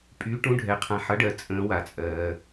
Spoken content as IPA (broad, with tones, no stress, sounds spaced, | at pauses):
pʼ y˨˥ ʈ ũ˨˥ ɖʱ ɛ˨ qʰ ã˨ ħ ʌ˨˥ ɖ ɜ˨ t͡sʼ ə̃ː˨˥ w a˨ t͡sʼ ɜː˨